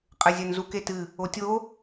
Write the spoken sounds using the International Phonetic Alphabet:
qʼɘzʲɛnzuk etɨ | otʲo

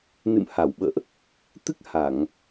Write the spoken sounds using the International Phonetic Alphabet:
nɨ̰˧˨mha˧˩wɓə̰ː˧˨ʔ | t̪ɨ˦˥k̚ ha˧˩˨ŋ

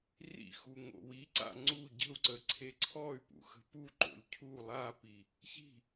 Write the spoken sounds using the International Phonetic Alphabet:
rḭxu ŋo̰wiǀa̰ ŋ͡ǀu ɟə̤u̯ǀə ǀʰeǀʰɔy̯pṵ xə̤puǃo̰lʲ cʰu lˠapi | çi̤

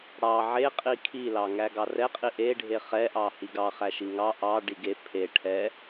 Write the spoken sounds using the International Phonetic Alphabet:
ɽɑ ʕeqʼi kʰilɑ ŋæɡɑrɛqʼi ʔeɖʱe χɛʔɑ hiɡɑχæ ʃiŋɑ ʔɑ ɖiɡe pʰe ʈʰɛ

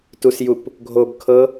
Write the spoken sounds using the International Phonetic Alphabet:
tusjup | ɡʱob kʰɤ

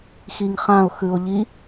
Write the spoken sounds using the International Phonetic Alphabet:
xiŋχão̯xɯo̯ʎi

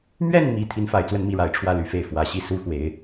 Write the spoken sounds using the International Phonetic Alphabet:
mɥɛ˥˩n mi˧˥ t̪ʰi˧˥nfa˨˩ɪ̯t͡swə˥˧nmi˥˩ ɻa˨˩ɪ̯ʈ͡ʂʰwä˥˩ly˨˩fe˥˩ɪ̯ fwä˨˩ɕi˥˩ su˥xwe˧˥ɪ̯

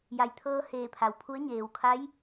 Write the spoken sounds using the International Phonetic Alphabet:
ja˩jt̪ʰɤː˧ heː˧˩pʰa˩wpʰu˧˥ə̯ ɲeː˩wkʰa˧˥j

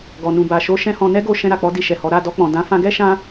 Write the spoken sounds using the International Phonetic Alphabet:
ɡɔ˨nũ˨ba˨ ʃo˧ ʃɛ̃˦hɔ̃˧ nɛ˦ɡo˧ ʃɛ̃˧ɾa˨k͡pɔ˨˦ di˧ʃɛ˨hɔ˨˦ ɾa˦˨dɔ˧k͡pɔ̃˨ dã˨˦fã˧ ɡɛ˦ʃã˧

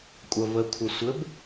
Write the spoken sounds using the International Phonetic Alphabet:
kʷʼɐvə kʷʰɘsʷɘb

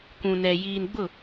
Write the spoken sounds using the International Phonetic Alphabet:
kʷũ˨nɛ˨ jiː˨nɡ͡bʊ˦˨

